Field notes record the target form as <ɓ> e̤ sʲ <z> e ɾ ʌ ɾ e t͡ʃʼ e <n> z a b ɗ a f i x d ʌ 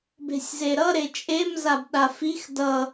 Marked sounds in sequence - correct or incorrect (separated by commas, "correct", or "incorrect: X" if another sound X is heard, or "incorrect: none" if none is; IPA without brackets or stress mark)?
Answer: incorrect: b, correct, incorrect: m